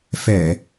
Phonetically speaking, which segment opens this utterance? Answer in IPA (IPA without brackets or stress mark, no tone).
f